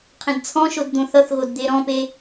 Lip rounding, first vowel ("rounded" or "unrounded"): unrounded